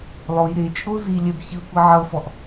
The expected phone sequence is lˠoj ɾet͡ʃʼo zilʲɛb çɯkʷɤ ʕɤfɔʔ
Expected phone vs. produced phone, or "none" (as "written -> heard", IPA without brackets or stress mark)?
none